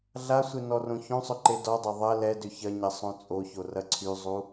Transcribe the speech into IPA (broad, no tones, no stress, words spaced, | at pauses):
ɮasʷe nɔrõçõsˤʏ ǃedɔdˤa ðˤɐ lɛdʏ çɐɲɐ sˤõt͡sʼoço rɐǀʰyzˤu